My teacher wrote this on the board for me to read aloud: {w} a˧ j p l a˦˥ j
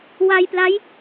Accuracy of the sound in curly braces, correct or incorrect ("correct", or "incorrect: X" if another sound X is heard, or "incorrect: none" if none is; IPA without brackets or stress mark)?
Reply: correct